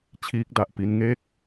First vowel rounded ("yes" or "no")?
no